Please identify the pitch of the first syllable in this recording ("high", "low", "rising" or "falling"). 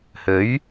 rising